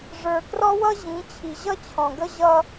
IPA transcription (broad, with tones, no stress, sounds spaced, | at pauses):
ʐ ə˞˨ k r ɔ˦ w ʌ˦ ʑ ĩ˨˦ t͡ɕʰ i˨ ʑ ʌ˦ t͡ɕʰ ɔ̃˨ ɡ ə˦ ʑ ʌ˦